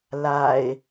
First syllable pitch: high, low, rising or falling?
low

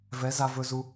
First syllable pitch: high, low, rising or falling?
rising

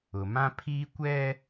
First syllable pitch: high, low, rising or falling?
low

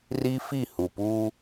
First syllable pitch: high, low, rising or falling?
high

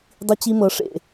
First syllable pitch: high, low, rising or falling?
high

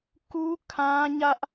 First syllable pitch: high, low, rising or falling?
high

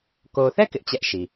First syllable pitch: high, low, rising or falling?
low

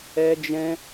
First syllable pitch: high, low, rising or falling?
high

